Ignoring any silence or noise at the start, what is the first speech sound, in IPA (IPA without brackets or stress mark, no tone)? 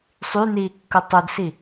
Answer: sˤ